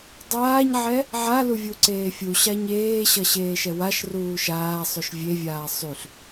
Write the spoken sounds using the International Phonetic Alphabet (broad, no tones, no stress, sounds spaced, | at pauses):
dˤ aː ɲ ʕ ɛ | ʕ a l u vʲ u ǀ eː fʲ u ɕ a ɲ eː ɕ ʌ ɕ eː ʃ ɛ w a ʃ r uː ʃ aː sˤ ʉ ʃ vʲ e vʲ aː sˤ y ɬ